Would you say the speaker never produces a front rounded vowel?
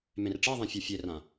yes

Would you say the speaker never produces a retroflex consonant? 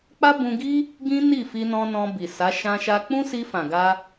yes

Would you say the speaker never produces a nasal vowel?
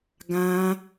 no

